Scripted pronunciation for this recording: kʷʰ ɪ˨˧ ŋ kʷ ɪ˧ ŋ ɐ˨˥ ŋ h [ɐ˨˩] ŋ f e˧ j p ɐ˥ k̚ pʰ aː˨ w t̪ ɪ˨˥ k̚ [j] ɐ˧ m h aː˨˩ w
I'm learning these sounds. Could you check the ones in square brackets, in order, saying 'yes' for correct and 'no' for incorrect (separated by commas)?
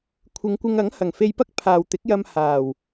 yes, yes